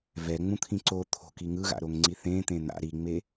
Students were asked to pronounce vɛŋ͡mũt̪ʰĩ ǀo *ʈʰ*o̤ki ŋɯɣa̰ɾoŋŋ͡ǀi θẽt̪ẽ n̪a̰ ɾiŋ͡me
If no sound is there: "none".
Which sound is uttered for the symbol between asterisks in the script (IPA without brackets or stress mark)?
t̪ʰ